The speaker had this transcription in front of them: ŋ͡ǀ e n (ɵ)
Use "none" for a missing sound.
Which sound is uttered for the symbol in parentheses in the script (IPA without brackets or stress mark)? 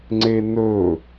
ɵ